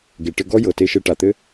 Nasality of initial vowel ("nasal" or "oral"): oral